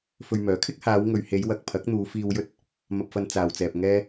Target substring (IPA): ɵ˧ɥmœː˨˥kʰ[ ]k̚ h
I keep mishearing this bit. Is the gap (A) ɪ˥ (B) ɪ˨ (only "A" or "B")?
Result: A